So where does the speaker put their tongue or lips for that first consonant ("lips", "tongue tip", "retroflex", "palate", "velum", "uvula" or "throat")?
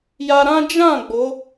palate